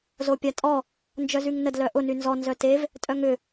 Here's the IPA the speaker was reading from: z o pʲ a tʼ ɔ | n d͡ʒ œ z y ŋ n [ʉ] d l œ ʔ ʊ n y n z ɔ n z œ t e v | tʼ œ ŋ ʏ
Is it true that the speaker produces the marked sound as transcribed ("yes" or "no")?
no